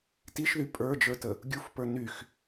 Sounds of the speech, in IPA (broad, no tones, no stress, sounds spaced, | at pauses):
t i ʃ ð y pʼ ə˞ d͡ʒ ə˞ t ə | ɡʲ u f p ə˞ n y x